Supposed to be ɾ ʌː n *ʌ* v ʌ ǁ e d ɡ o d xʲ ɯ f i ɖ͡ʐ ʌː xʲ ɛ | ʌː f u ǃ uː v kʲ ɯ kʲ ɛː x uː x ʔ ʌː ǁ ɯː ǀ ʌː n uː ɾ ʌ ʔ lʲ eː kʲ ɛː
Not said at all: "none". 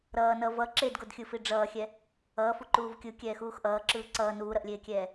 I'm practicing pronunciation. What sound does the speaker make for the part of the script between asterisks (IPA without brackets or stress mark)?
ʌ